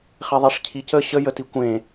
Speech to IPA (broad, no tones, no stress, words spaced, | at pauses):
χeðˤeʂcʰicə ɕə jətikʷẽ